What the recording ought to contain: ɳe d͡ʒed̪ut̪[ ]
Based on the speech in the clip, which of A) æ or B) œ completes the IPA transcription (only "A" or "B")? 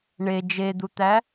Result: A